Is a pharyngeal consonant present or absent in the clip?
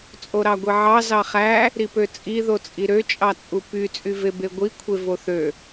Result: present